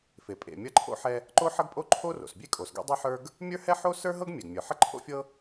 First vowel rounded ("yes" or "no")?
no